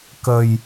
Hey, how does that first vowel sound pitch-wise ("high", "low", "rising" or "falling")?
low